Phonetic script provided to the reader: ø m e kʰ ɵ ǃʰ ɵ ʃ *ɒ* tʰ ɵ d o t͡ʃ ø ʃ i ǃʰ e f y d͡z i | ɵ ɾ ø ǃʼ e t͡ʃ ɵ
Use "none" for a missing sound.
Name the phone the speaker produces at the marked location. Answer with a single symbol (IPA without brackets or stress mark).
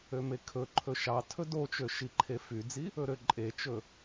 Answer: ɑ